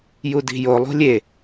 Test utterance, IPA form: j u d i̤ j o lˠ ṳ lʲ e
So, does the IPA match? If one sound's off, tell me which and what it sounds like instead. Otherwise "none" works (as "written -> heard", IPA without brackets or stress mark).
none